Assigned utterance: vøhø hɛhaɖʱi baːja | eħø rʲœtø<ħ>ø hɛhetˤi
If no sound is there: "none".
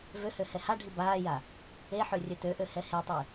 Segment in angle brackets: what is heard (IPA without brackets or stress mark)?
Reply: ʔ